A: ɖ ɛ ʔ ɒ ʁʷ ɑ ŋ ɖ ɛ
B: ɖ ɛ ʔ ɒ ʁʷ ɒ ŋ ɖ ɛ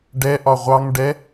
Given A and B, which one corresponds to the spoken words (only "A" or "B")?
A